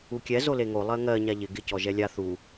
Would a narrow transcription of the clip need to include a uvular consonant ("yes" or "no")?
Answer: no